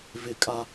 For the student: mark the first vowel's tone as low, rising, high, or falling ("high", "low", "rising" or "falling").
high